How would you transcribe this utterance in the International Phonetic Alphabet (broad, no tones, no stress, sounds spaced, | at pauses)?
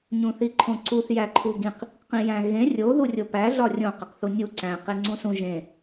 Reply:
ɲ ũ θ i ǃʰ õ ǀ u θ j æ ǃʰ u ɡ ĩ q | q ĩ j æ̃ ɣ ẽ rʲ o ð u rʲ o p æ ɮ ɒ rʲ õ q e q θ u nʲ u ǀ æ̃ q e ŋ͡ǀ ũ s ũ ʒ ẽ